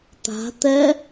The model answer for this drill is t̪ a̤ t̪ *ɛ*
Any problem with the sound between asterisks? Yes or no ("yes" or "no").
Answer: no